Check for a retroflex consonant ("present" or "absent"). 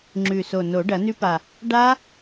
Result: present